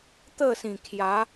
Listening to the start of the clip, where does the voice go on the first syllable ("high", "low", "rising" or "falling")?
falling